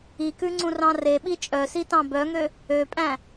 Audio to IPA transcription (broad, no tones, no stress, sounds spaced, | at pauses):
i k ʉ ŋ͡ǀ ũ r ɑ̃ r e ɓ i t͡ʃʼ œ s i t ɑ̃ b œ ŋ ø | ø pʼ æ̃